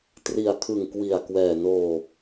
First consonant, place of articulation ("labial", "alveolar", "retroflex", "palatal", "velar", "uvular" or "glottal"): alveolar